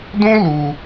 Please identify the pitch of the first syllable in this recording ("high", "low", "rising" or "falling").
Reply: high